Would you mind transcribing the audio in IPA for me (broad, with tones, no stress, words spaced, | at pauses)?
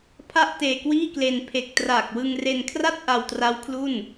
pʰa˥˩ʔteː˧kwiː˥˩kle˧n pʰe˨˩k̚ traː˨˩k̚wɯ˧ŋre˧nkʰra˥˩t̚ ʔa˧wtra˦˥w kʰlu˥˩n